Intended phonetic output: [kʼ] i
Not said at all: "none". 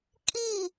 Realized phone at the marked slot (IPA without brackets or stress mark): kʼ